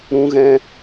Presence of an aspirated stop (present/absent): absent